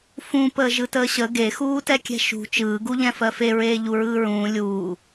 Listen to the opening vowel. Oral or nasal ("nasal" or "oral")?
nasal